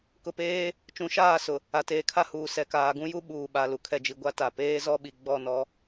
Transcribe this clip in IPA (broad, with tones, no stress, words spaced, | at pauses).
kʊ˨peː˦ | t͡ʃũ˨˦ʃaː˦˨sʊ˨ | a˨teː˨kʰa˦huː˨ sɛ˨kaː˨ɡũ˦ju˦ ɓuː˨ɓa˨ lu˨kʰɛ˨d͡ʒi˨ ɡʷa˦ta˨ peː˦zɔ˦ɓi˨ ɡ͡bɔ˦˨nɔ˦